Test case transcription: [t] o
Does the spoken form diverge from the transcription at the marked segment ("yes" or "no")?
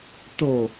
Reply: no